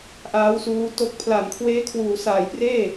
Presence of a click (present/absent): absent